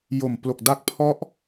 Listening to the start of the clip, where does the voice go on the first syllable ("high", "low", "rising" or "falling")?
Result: low